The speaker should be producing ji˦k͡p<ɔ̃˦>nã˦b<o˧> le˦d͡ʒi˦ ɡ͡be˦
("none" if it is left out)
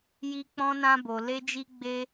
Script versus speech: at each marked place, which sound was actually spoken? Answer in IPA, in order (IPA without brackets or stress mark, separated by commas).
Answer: ɔ̃˦, o˧